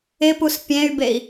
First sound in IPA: ɪ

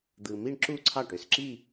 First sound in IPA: d̪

